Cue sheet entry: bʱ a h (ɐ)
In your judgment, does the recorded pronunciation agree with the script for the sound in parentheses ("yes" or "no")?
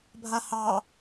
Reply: no